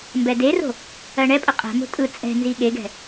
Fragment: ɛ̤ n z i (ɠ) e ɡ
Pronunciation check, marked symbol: correct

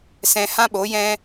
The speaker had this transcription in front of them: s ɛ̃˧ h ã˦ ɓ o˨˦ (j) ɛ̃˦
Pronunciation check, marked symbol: correct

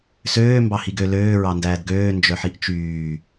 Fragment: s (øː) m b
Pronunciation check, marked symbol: correct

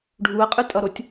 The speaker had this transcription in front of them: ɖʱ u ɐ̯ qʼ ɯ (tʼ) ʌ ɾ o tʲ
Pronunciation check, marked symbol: correct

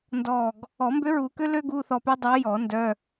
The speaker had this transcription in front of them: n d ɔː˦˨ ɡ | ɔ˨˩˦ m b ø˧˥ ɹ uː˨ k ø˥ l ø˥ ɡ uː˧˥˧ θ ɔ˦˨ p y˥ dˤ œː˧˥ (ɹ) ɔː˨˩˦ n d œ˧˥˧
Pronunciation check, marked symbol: incorrect: j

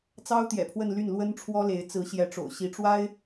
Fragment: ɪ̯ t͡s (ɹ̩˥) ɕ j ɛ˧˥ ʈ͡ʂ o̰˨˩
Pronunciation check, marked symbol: incorrect: ɹ̩˧˥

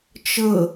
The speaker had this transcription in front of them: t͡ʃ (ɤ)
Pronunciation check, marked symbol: correct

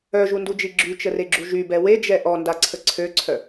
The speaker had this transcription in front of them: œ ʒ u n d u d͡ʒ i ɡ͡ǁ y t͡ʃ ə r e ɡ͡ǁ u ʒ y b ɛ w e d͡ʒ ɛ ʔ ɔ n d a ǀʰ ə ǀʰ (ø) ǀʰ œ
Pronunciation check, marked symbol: correct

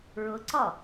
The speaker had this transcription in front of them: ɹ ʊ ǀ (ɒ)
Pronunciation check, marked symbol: correct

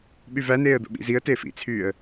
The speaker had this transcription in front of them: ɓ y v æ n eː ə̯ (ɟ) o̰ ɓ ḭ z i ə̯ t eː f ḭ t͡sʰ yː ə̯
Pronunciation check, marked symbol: incorrect: d̪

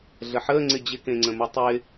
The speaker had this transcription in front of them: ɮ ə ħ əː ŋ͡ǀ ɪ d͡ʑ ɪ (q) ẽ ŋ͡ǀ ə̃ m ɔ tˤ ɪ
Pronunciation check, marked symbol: incorrect: k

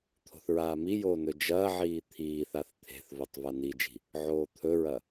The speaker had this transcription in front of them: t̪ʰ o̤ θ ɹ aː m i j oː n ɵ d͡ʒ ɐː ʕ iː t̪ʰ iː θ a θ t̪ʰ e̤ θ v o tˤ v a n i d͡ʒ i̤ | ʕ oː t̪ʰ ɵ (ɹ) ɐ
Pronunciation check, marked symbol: correct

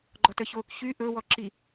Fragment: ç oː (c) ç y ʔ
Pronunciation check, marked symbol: incorrect: k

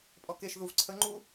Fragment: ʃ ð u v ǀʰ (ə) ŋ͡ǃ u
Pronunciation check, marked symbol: correct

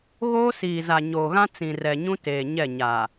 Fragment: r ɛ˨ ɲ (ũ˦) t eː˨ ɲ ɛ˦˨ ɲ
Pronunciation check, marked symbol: correct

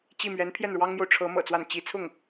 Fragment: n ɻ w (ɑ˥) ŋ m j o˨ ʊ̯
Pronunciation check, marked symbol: correct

